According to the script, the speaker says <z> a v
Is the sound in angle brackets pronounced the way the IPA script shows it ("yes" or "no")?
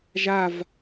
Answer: no